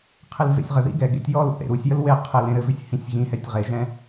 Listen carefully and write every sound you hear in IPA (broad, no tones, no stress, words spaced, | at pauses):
qʰelvḛsʲʁəðḭ ɡɛɡḛtʲ jɔl θḛɾusʲjəl we qʰɘlẽ ɾɘvʏsʲ hĩsʲɣĩhɛtʲ ʁeʒɛ̃